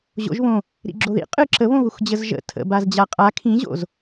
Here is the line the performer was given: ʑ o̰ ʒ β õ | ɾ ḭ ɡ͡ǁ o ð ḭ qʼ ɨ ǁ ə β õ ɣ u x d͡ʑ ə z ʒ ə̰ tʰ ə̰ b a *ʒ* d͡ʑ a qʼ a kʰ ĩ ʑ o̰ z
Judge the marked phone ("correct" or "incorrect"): incorrect